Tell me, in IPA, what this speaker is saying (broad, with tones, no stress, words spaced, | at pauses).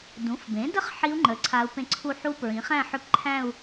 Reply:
dũ˩˥fbẽ˩˥də˥˧χ ħi˦˥u̯ŋ͡ǃə˩˥ ǀʰa˦˥u̯pẽ˥˧ ǀʰu˥˧ ħu˦˥pɹĩ˩˥ χæ̃˥˧ħʏ˦˥p ǃʰæ̃˥˧u̯